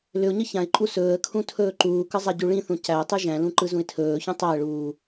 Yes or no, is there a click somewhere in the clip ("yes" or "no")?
yes